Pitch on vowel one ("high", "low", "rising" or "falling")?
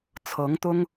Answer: rising